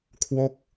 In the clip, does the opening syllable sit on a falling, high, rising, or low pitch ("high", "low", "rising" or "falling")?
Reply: falling